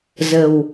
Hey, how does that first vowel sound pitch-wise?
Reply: low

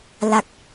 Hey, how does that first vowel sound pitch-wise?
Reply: low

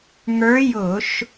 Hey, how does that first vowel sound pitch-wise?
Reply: rising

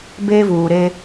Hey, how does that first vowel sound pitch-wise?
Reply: high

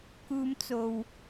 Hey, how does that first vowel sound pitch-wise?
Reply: low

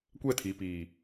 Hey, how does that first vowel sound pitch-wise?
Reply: falling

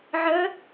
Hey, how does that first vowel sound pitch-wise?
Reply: rising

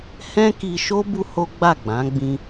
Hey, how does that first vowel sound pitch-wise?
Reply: high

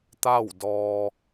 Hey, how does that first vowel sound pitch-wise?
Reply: falling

